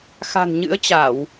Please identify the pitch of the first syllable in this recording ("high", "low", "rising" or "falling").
low